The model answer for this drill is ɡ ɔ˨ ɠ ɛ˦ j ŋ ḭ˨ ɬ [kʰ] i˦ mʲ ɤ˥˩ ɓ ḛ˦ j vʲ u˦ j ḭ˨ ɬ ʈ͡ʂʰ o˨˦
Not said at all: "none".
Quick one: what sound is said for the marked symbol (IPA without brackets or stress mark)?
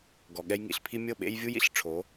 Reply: pʰ